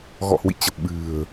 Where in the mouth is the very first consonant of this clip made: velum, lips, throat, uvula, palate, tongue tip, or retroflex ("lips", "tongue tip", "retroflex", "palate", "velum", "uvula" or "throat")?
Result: velum